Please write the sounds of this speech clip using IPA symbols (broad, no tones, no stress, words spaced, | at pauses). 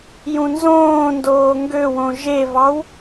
jũnzõːndoː ŋɡøwõ ʒevɑw